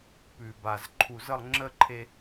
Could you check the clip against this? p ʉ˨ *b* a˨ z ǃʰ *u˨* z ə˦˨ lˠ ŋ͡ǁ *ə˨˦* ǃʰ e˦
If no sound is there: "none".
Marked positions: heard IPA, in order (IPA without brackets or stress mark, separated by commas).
b, u˨, ə˦